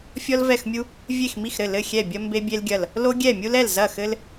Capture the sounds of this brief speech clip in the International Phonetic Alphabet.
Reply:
fʲ ɔ˥ l v ɛ˥˨ x mʲ u˥ | vʲ e˥˨ x m i˥˨ x ɾ ɘ˥˨ l ɘ˥˨ xʲ ɛ˥˨ bʲ ɐ˥ m b e˥ bʲ e˥ l ɡʲ ɐ˥˨ l | l o˥ ɡʲ ɛ˥˨ mʲ u˥ l ɛ˥˨ l z ɐ˥˨ x ɘ˥ l

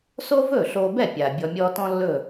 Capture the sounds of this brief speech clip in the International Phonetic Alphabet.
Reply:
s o˥ v ɵ˥˩ ɬ o˧ b ɛ˥˩ pʲ a˩ bʲ ɔ˧ mʲ ɔ˥ t ɔ̃˥ lː ɵ˥˩

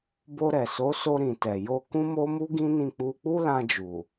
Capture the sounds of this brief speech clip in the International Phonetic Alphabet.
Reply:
b o˧ ɾ ɛ˨ s o˨˦ s o˧ ɾ ĩ˨ t ɛ˨ j o˧ k ũ˦ m o˦ m u˦ ɡ ĩ˦ n ĩ˦˨ k͡p u˧ k͡p u˦ l ã˧ d͡ʒ u˨

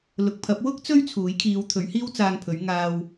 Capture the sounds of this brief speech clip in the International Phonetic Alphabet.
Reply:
l ʊ˨ k̚ pʰ ɐ˨˥ p̚ w ʊ˥ k̚ t͡s ɵ˥ ɥ t͡sʰ uː˨˥ j kʰ iː˨˧ w t̪ʰ ɵ˨˥ ɥ h iː˥ w t͡s aː˧ ŋ pʰ ɵ˨˥ ɥ ŋ aː˧ w

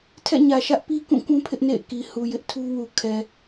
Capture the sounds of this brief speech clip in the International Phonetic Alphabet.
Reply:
tʰ ɛ̰˦˨ ɲ ä˨ ʃ ä˦ ʔ p i˦ k ũ˦˨ k ũ˦ pʰ ɪ˦ ʔ n ḛ˦˨ ɪ̯ k i˨ h u˨ j ɪ˦ ʔ tʰ u˦ w u˨ kʰ ɛ˨

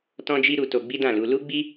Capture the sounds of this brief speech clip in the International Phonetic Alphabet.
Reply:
t ɔ̃˦ d͡ʒ i˦ ɾ u˧ t o˧ ɡ͡b i˦ d ã˦˨ l u˧ l u˦ ɡ͡b i˦

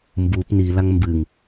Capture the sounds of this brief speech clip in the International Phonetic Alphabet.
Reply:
m b u p n i l a ŋ m b ɨ ŋ

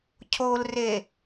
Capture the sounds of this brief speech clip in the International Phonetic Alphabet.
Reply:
cʰ o l r e

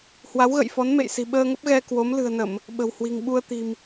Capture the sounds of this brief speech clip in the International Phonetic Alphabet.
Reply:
h w a˨˦ w ɣ ə̰˧˨ j f ɔ˨˦ n m ḛ˧˨ j s i̤˨˩ ɓ əː˧ ŋ ə˦˥ p̚ ɣ ɛ˧ k w o˨˦ m l ɨ̤˨˩ ə̯ n ə˧˩˨ m | ɓ ə̤˨˩ w h w i̤˨˩ ŋ ɓ u˧ ə̯ t̪ i̤˨˩ m

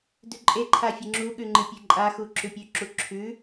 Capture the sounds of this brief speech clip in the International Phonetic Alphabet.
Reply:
d ʉ ǃʼ e ǃʰ a fʲ ɨ ŋ͡ǁ u ɠ ʉ ŋ͡ǃ ɨ pʲ e ǃʼ a x u ǁ ʉ pʲ ʉ ǁ u ǁʰ ʉ

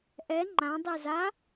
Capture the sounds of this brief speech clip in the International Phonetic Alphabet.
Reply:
ʔ ɛ ŋ͡ǃ ã dˤ i z a

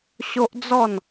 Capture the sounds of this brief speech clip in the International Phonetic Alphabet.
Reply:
ɕ o˦ ʔ d͡z ɔ˥˧ n

